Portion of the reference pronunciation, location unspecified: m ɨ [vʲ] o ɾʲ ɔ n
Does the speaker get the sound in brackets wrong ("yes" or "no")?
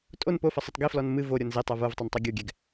yes